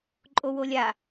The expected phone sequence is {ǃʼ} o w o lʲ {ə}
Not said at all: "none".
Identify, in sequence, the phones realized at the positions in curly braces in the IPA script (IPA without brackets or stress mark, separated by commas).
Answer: ǃʼ, a